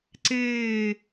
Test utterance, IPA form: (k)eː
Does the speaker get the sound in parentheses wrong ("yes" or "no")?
yes